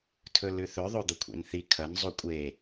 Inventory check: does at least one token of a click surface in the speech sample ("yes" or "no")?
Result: no